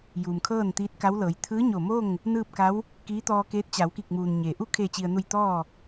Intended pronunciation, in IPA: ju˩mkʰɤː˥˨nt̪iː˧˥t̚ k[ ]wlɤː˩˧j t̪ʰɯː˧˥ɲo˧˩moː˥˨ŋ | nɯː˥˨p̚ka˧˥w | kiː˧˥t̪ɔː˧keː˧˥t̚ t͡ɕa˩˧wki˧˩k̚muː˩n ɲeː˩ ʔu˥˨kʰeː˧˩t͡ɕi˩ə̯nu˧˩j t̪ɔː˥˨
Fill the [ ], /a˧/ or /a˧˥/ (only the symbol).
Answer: a˧˥